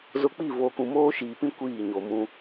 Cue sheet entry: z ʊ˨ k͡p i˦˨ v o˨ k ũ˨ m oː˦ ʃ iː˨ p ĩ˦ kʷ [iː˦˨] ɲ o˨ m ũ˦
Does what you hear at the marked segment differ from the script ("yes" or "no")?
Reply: no